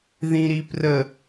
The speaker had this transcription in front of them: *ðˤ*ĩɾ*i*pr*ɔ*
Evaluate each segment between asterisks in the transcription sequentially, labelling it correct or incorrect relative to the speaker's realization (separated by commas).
incorrect, correct, incorrect